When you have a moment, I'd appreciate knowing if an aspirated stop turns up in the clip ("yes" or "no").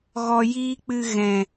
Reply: no